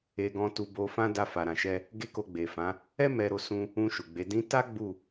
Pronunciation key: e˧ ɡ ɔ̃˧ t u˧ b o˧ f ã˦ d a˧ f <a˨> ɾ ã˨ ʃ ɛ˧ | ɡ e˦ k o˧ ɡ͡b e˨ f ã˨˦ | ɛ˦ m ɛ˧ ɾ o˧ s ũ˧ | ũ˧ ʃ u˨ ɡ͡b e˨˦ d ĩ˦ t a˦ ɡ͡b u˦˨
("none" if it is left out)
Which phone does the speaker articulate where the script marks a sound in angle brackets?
a˨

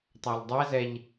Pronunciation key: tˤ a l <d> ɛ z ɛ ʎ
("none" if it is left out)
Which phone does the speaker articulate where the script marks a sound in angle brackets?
dˤ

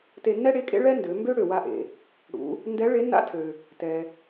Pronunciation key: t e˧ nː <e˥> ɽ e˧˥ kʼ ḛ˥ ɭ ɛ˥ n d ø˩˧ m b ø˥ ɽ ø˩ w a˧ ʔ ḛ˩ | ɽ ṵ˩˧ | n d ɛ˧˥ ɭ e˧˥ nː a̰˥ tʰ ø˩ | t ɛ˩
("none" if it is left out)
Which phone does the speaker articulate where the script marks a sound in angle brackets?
ɛ˥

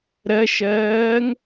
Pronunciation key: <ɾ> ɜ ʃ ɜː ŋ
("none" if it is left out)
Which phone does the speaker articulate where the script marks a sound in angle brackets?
ɾ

